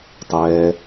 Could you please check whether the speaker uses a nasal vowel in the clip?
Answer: no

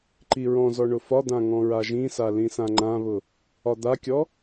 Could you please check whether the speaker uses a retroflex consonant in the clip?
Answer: yes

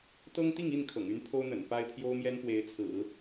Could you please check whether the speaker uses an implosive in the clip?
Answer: no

